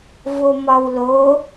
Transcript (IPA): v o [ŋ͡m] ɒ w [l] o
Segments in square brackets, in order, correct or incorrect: incorrect, correct

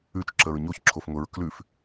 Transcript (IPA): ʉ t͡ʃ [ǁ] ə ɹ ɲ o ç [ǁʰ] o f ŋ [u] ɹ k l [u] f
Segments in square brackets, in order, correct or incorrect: correct, correct, incorrect, incorrect

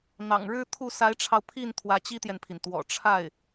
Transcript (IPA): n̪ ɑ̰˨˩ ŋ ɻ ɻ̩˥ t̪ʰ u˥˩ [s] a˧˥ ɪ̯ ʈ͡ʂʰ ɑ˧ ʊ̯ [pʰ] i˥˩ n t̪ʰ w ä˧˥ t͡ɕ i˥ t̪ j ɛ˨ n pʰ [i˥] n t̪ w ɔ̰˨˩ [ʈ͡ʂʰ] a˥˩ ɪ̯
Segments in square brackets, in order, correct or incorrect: correct, correct, incorrect, correct

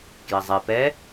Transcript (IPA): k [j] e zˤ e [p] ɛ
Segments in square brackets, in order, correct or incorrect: correct, correct

